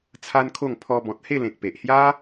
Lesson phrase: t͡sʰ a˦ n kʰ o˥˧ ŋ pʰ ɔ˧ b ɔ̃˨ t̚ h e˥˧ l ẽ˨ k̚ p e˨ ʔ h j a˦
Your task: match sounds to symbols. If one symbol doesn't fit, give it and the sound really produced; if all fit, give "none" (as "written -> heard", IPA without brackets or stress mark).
none